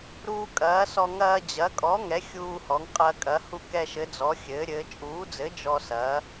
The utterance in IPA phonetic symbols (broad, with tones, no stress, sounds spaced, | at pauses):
ɾ uː˧ kʼ ɐː˩˥ s ɔ˧ ŋ ɐː˧ d͡ʑ ɐ˩˥ kʼ ɔ˩˥ ŋ ɛ˩˥ xʲ uː˧ h ɔ˩˥ ŋ qʼ ɐː˧ kʼ ɐ˩˥ h u˧ k ɛ˧ ʃ ɘ˩˥ d͡z ɔ˩˥ xʲ ɘː˩˥ ɾʲ ɘː˩˥ t͡ʃʼ uː˩˥ d͡z ɘ˩˥ d͡ʒ ɔ˧ s ɐː˩˥